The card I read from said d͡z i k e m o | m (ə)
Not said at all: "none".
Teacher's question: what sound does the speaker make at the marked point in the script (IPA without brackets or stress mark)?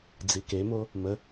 ə